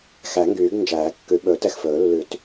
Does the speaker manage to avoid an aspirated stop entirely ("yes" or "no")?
yes